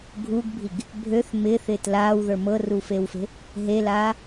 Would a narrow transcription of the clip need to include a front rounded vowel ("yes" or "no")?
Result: yes